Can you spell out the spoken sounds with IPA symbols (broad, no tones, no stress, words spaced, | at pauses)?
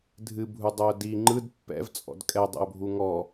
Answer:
dʱɨbʱudˤœʊ̯ di ŋ͡ǃɯd pːɛ̰vt͡sʼɔ̰d kʼɛdˤɛ̰ʊ̯bʱu ŋɔ